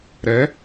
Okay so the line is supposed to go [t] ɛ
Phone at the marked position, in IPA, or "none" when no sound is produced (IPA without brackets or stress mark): ɾ